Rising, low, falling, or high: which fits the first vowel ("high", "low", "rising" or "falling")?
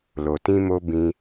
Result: low